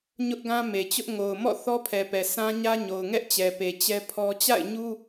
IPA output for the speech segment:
ɲ ʊ˦ ʔ ɡ ã˦ m e˨ t͡ɕ ʊ˦ ʔ ŋ o˨ ʊ̯ m ɔ̰˦˨ θ ɔ˦ pʰ ɛ˨ p ɛ˨ sʰ ã˦ ɲ ä˦ ɲ o˨ ʊ̯ ŋ ɛ˦ ʔ t͡ɕ ɛ˨ p e˨ t͡ɕ ɛ˦ pʰ ɔ˦ t͡ɕ a̰˦˨ ɪ̯ ɲ u˦

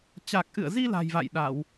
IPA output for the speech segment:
t͡ɕ a˨˩ k̚ ʔ ɨ̰˧˨ ə̯ z i˧ l a̤˨˩ j v a̰˧˨ j ɗ a˧˩˨ w

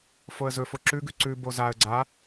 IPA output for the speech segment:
f o ə̯ z ɵ f o ǁ ʉ ɡ ʉ ǀ ʉ b o z a ə̯ ɡ͡ǀ a

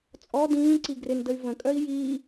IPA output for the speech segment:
t͡sʼ ɔ d ĩː ǀ i ɡ r ɪ n d ə y̯ v ə̃ kʼ œ i̯ j iː

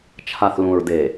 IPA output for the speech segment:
t͡ʃʰ a˨ θ l ũ˨ ɹ d e˨

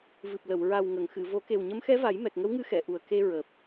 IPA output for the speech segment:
v ɨ˨˩ p̚ l ə˨˩˨ w ɹ a˨˩ w ŋ ə˨˩˨ ŋ x ɨ˨˩˨ v o˨˩˦ k e˨˩ w ɲ ə˧˥ m x ɛ˧˥ v a˨˩˦ j m ɛ˨˩ k̚ ŋ ə˧˥ w ŋ ɨ˧˥ x ɛ˨˩˨ ʔ u˨˩ ə̯ k e˧ ɹ əː˨˩ p̚

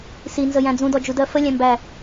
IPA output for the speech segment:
s i n z ə j æ̃ d͡z ũ d ɔ d͡ʒ u d ɜ f ə lʲ æ̃ m b æ

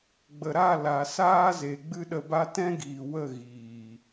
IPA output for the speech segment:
ɡ͡b ə˨ ɾ a˦˨ l a˨ s aː˦ z e˨ ɡ͡b ɨ˦ ɗ ə˧ b a˦ t ɛ̃˦ ɡ iː˨ w ə˦˨ ɣ iː˨

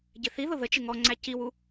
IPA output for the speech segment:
ɟ ɪ θ i ð ʊ ð ə t͡ʃ ɪ ŋ ɔ ŋ͡ǀ æ c i w u

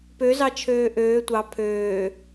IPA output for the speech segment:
p ø z ɑ t͡ʃʰ øː ʔ øː tʷ ɑ pʰ øː

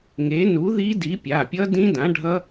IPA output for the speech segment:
ŋ e˨˥ n u˨˥ ð i˦˥ d i˨˥ pʲ a˩˧˩ pʲ ʌ˦˥ d ĩ˦˥ d ã˨˥ ɖʱ ʌ˦˥

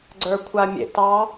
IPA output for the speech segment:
ɡ͡ǀ ə˞ kʷʰ a mʲ ḛ t ɑ

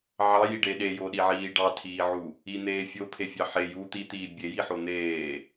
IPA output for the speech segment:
ʕ ɑ j i ɖ e ɗ e j o ɗ i ʕ iː ɖ ɑ tʰ iː ʕ u | i n̪ eː fʲ o pʰ e fʲ ɑ ħ e j u t̪ i t̪ iː bʲ e j i ħ o n̪ eː

